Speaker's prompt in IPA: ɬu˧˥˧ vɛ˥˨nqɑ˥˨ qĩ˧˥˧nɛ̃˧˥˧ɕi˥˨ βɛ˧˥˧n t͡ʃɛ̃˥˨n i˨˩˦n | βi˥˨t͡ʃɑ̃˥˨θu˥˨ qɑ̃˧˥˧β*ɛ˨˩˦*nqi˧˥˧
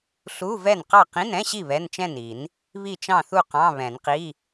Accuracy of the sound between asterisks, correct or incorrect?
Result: incorrect